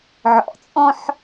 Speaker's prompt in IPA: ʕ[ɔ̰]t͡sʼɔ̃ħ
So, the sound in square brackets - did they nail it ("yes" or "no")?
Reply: yes